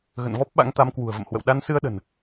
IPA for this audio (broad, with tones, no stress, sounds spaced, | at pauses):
ɣ ə̰˧˨ n v ɔ˦˥ p̚ ɓ a̰˧˥ ŋ t̪ a˨˦ m k w ṳ˨˩ ə̯ v ə̰˧˨ m h w ə̰˧˨ w ɗ a˧ n s ɨ˧ ə̯ ɗ ə̤˨˩ n